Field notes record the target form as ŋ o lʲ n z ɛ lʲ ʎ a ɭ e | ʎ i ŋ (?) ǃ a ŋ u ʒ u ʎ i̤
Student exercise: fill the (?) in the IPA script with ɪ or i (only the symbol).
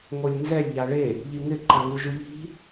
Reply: ɪ